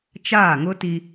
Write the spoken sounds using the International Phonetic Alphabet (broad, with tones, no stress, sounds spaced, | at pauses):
t͡ʃ aː˦˨ ŋ ʊ˦ t i˦